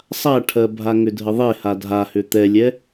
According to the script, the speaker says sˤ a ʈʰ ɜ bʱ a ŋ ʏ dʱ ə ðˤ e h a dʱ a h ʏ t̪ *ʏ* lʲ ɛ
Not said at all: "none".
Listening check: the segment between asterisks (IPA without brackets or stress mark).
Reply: ɛ